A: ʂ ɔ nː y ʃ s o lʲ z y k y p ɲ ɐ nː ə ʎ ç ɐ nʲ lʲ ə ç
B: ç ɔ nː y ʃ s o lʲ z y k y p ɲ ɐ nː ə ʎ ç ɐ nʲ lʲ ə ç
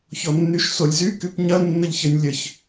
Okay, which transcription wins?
B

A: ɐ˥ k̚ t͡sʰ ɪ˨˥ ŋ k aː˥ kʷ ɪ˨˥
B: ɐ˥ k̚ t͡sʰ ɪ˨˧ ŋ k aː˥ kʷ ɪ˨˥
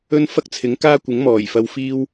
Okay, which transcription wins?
A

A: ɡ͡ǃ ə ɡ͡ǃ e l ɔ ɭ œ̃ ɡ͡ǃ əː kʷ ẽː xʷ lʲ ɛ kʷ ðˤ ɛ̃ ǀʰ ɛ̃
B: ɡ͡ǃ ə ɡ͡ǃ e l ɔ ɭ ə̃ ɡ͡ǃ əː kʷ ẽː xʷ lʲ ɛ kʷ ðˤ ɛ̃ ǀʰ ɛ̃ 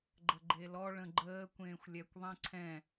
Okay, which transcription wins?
B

